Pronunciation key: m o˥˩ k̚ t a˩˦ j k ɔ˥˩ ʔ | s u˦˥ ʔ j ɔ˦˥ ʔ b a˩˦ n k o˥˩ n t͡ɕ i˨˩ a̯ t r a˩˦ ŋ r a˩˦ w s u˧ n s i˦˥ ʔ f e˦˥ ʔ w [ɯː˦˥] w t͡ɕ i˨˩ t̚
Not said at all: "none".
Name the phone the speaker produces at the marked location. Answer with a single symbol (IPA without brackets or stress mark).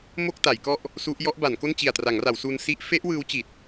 ɯː˦˥